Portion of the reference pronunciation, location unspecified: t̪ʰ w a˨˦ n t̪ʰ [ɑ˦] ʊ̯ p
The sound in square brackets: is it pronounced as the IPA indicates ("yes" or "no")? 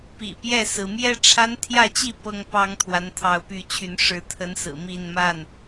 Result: no